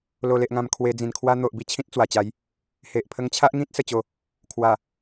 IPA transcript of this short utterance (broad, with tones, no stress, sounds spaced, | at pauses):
l o˨˩ l e˨ ʔ ŋ ã˨˩ m kʰ w e˧ d͡z ĩ˨˩ n kʰ w a˦ n̪ o˨ ʔ b i˥˧ t͡ɕʰ ĩ˦ t̚ t͡s w a˨˩ t͡ɕ a˨˦ j | h e˨ ʔ pʰ ə˦ ŋ t͡ɕʰ a˦ ʔ ŋ ĩ˦ t̚ s ə˥˧ t͡ɕ o˥˧ | kʰ w a˨˩